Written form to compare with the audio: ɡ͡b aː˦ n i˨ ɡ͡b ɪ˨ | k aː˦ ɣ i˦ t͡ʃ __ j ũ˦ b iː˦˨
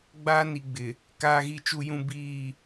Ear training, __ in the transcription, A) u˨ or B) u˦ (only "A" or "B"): B